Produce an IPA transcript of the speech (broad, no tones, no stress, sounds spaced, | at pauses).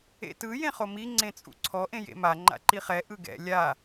ḛ t ɯ j ẽ χ o m i ŋ͡ǀ ẽ t͡sʼ ṵ ǀʰ ɔ ʔ ẽ j ḛ m a ŋ͡ǃ a̰ ǃ i χ ɛ ʔ ɯ ɡ ɛ̰ lʲ a